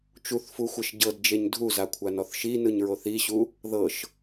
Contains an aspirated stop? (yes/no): yes